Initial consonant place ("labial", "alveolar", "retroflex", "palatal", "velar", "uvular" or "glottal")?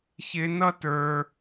palatal